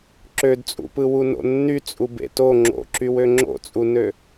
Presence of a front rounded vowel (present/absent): present